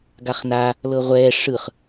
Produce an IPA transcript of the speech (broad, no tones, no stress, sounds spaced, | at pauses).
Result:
ɡ a χ n a | l ɤ ʁʷ ɛː ʂ ɯ χ